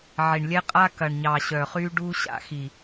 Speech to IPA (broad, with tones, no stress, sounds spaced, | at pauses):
ʕ i˨ ɳ lʲ ɛ˦ qʼ a˦ k ɐ˨ ɳ ɲ ɑ˨ ɕ œ˨ χ y˦ ɖ u˦ ɕ a̰˨ x i˨